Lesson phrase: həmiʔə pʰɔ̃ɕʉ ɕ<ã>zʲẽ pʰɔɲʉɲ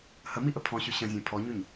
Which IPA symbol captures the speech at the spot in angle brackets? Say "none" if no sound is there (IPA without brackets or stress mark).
ə̃